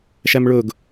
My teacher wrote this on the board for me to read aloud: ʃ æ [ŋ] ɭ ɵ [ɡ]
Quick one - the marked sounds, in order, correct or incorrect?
incorrect: m, correct

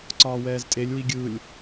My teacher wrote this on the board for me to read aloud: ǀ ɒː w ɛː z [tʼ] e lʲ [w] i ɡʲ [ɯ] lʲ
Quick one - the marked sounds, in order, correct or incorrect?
correct, correct, correct

